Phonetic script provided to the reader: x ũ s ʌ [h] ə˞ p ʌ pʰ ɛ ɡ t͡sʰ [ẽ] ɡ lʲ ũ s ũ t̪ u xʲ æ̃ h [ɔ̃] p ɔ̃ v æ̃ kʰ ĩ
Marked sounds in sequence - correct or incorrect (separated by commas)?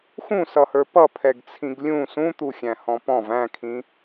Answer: correct, incorrect, correct